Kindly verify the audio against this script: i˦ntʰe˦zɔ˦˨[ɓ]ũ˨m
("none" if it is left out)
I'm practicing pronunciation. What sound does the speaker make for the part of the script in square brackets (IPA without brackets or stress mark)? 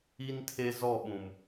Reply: ɓ